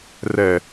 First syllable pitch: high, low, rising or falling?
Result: low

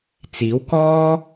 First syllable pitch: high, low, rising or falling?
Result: rising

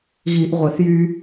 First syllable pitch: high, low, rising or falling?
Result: low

